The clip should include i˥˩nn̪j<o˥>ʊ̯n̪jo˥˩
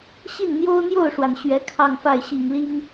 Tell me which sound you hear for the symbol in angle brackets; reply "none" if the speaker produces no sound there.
o˥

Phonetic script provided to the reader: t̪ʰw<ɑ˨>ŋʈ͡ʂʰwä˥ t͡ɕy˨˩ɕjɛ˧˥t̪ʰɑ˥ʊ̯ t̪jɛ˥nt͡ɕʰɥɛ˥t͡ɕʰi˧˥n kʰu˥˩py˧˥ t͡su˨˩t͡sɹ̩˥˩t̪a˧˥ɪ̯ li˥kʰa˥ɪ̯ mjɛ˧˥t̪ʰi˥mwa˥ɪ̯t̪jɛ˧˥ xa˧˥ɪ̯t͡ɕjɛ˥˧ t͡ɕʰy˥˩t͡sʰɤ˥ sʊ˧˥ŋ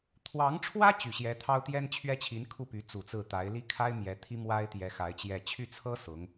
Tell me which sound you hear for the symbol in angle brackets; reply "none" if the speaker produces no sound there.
ɑ˧˥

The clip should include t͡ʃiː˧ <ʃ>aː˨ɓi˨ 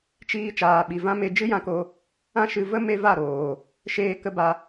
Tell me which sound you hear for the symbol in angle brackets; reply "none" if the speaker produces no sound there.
t͡ʃ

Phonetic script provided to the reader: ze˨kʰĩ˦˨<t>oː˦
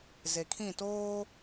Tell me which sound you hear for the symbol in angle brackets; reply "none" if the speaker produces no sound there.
t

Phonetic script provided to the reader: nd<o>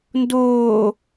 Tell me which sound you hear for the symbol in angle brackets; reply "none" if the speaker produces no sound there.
oː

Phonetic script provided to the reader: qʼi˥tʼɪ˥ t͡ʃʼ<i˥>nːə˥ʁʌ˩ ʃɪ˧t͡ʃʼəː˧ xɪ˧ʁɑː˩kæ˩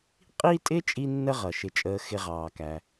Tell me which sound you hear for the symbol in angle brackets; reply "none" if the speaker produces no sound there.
i˥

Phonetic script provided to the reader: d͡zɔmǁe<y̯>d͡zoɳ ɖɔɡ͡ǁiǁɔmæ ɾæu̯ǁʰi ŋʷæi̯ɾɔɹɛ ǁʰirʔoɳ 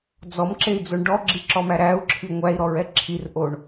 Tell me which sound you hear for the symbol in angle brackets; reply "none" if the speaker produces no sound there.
i̯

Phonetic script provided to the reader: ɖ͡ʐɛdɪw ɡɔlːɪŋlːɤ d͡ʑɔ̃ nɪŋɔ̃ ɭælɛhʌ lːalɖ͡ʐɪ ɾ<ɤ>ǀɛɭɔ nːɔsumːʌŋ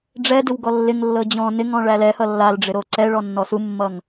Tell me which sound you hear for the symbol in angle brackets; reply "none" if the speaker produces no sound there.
o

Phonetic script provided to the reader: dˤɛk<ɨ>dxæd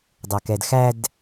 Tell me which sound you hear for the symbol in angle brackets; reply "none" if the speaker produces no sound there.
ɛ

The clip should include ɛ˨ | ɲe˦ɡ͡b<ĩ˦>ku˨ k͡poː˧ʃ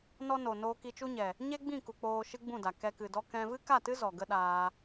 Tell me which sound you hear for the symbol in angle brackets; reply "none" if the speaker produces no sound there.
ĩ˦˨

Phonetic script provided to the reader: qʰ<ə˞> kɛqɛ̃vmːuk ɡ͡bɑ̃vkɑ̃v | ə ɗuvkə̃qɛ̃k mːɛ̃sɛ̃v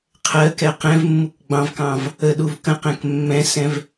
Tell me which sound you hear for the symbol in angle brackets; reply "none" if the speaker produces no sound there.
ɜ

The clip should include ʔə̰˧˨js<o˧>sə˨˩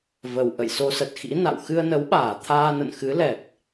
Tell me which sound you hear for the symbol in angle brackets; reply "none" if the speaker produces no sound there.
o˧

